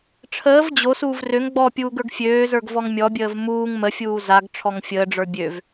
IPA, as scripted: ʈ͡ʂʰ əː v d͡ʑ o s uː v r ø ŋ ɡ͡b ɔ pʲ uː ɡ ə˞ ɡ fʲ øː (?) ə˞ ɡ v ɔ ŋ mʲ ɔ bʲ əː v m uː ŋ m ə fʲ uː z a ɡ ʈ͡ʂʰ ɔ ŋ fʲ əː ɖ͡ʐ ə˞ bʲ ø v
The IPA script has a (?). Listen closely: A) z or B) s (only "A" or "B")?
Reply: A